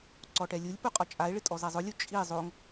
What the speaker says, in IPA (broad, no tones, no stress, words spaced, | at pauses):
ǀɔʈɛlʲulʲpu qʼɔt͡ʃʼae̯ɭɪ tʼɔzɛzˤʊlʲu t͡ʃʼi zˤoŋ